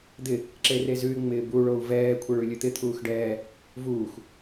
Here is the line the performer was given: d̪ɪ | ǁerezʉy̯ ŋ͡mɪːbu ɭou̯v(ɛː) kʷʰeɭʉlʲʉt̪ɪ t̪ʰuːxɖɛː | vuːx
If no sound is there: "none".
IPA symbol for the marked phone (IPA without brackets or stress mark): ɛː